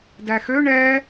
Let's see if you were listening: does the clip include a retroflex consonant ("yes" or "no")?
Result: yes